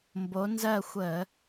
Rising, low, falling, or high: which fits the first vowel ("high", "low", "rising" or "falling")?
rising